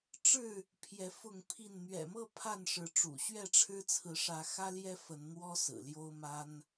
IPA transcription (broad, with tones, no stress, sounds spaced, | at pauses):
ʈ͡ʂ ɻ̩˥˨ | pʰ j ɛ˨˦ f ʊ˥˨ ŋ pʰ i˥˨ n n̪ ɥ ɛ̰˨˩ m ɤ˥˨ pʰ a˥˨ n ʂ ɻ̩˨˦ ʈ͡ʂ ṵ˨˩ ɕ ɥ ɛ˥˨ ʈ͡ʂʰ ɻ̩˦ t͡sʰ ɹ̩˨˦ ʂ ä˨˦ x ä˦ l j ɛ˦ f ə˨˦ n n̪ w ɔ˦ s ɹ̩˨˩ l j o˦ ʊ̯ m a˦ n